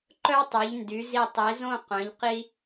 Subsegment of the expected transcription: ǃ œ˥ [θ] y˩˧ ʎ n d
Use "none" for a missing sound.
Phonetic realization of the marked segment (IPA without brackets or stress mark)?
tˤ